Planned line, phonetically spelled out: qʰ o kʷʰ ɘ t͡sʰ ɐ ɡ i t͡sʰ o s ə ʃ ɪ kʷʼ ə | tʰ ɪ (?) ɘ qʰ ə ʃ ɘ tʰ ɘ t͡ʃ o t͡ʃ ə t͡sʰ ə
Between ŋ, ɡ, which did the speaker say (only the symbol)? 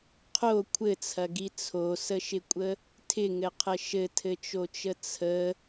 ŋ